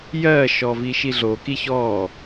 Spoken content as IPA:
jɜʃɔ viʃiɮoki çɔ

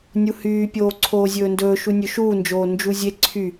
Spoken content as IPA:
nʲuhyː pʲoːǀʰoːzʲɵːndɵː ʃunʲɵʃuːnd͡ʒoː nd͡ʒuzʲe ǀʰy

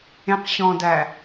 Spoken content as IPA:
ẽqɕɔ̃dæ

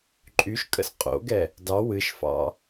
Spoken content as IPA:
ǃʼyʃkʼə̰s qʼo̰ɡɛ | dɑ wɨʃfɑ̰

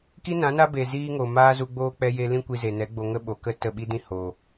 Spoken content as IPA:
ki˦nã˨˦na˦be˨ ziː˦ŋo˨ maː˦zu˧ɡ͡boː˦ k͡pɛ˧je˧lĩ˦ kʷi˧ze˨nɛ˨˦ɡ͡bo˧ ŋə˦ ɓo˨kə˦ tə˦˨ɓi˦dĩ˦ ho˨

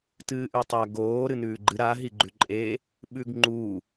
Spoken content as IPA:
tɨːʔʉtˤa ɡoː ɾɨnʉːɡ͡ǃɨ ɾa ɦiɡ͡ǃʉǃʼe | ɓʉɡŋ͡ǃu

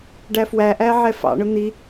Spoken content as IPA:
ɖæfwæʔæ ʕɛfɑ̰ɳʊ n̪i

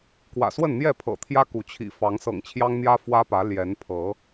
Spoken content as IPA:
kwä̰˨˩swə˥˨nn̪jɛ˥˨pʰɤ̰˨˩ t̪ʰjä˦ku˨˦t͡ɕʰḭ˨˩ fɑ˨˦ŋsɤ̰˨˩ŋt͡ɕʰjɑ˦ŋn̪jä˦ fwä˦pä˨˦ ljɛ˨˦n pʰɤ˨˦

